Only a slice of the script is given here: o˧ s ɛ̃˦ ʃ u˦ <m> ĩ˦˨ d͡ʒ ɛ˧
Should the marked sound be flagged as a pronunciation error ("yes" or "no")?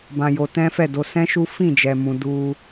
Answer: yes